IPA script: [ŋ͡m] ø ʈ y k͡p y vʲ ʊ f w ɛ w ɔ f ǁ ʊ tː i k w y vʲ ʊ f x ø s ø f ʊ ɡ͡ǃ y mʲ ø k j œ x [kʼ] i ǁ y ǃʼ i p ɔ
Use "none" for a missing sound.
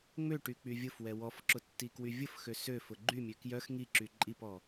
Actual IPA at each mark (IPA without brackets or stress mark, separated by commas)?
ŋ͡m, ŋ